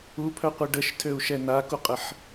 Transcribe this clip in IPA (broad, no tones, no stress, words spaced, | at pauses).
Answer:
upʰœqʷə ɖəʃtʰøu̯ʃɛ nakuqʼəħ